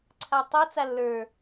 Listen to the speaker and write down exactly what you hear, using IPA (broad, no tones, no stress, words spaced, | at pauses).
ǀʰatˤat͡s alːə˞